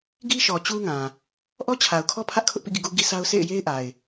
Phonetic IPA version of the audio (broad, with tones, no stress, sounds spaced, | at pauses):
ɡ i˦ ʃ ɔ˨ t͡ɕ u˦ ŋ ã˨ | ʔ ɔ˦ t͡ɕʰ a˨ ʊ̯ kʰ ɔ˦ pʰ ä˦ ʔ kʰ ʊ˦ ʔ p ḭ˦˨ ɡ ḭ˦˨ ɡ u˦ ɡ i˦ sʰ a˦ ʊ̯ s ḛ˦˨ ɪ̯ j e˦ ɪ̯ ʔ a˨ ɪ̯